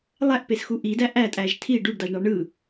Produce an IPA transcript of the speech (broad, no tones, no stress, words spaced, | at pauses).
lˠæʔpesxu ʔidæ ʔætʼæʒ tʰi ɖuɖdɑʒɳɑ ɳɯ